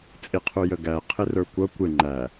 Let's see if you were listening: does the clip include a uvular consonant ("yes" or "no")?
yes